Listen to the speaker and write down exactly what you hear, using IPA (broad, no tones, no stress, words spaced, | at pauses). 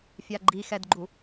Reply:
fʲaɡ͡ǃixɛdɡ͡ǃu